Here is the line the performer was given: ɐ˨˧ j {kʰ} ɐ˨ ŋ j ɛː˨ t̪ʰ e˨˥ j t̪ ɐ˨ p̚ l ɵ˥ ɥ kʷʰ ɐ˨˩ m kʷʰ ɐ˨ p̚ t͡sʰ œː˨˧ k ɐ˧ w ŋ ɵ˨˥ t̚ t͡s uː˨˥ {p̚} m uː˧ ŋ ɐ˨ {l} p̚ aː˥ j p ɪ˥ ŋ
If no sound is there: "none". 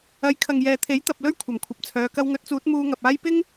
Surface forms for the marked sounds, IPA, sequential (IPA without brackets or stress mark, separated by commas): kʰ, t̚, none